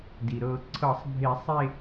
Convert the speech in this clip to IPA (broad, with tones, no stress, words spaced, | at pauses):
di˩ɾɤ˨˩˦ǀʰɤ˨˩˦sˤ bʱe˨˩˦sˤ e˥˧